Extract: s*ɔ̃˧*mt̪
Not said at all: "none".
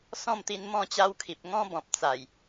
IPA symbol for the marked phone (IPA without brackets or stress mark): ɔ̃˥˧